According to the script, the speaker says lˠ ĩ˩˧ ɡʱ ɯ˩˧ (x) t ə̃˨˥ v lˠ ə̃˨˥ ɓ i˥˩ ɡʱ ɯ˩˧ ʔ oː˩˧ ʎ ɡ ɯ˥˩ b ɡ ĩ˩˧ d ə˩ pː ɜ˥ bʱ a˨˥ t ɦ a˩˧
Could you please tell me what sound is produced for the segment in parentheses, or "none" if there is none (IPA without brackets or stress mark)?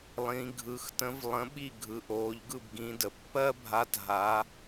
x